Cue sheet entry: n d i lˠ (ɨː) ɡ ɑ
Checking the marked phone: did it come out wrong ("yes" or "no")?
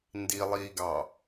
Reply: yes